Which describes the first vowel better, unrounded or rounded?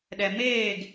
unrounded